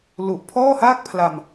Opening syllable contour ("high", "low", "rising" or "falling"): low